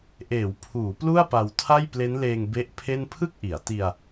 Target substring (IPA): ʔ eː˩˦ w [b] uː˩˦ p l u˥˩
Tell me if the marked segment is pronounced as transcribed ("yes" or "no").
no